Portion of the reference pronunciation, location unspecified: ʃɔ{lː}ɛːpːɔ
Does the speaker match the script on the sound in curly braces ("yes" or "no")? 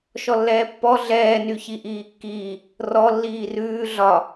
yes